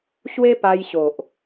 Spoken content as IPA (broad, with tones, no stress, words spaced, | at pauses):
ɕwe˦pa˧jɕo˨ʔ